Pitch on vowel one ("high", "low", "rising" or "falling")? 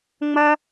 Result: high